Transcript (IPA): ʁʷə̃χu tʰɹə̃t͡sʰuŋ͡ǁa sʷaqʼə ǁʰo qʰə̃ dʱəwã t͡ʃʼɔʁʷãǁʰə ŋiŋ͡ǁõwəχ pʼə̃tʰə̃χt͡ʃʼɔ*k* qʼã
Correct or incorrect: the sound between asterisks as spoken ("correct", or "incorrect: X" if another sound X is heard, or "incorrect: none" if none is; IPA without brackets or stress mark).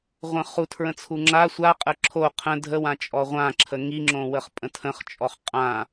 incorrect: χ